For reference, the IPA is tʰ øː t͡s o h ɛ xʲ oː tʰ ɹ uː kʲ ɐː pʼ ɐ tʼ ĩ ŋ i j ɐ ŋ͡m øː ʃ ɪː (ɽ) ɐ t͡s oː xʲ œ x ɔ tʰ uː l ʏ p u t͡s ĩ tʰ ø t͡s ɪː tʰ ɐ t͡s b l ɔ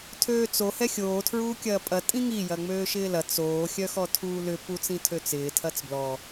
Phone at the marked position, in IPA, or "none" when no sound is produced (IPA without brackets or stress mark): l